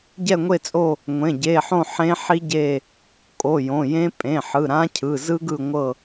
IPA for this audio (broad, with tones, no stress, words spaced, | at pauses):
ɟɛ˦˨ŋʷe˦˨t͡sʼo˦˨ | ŋʷẽ˩˧˩ɟe˩˧˩ħõ˦˨ ħẽ˦˥ ħi˦˥ɟe˦˨ | kʼo˩˧˩jõ˩˧˩jẽ˦˥ pʼẽ˩˧˩ħɯ˩˧˩ɾã˦˥cʰɯ˩˧˩ zɯ˦˥ɡɯ˦˨ŋʷɤ˦˨